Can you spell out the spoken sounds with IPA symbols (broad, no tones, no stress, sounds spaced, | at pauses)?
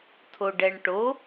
tʰ o ɖ ɛ ɳ ʈ o